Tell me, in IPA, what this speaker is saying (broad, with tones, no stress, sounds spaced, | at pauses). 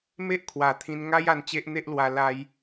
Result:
m e˦ ʔ kʰ w a˨˩ t̪ʰ ĩ˧ n ŋ a˦ j a˧ n t͡ɕ e˦ ʔ n̪ e˦ ʔ l w a˧ l a˧ j